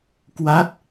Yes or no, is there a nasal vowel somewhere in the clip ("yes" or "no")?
no